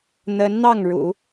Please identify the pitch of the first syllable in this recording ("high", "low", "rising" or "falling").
rising